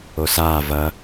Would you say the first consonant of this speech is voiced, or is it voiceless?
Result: voiceless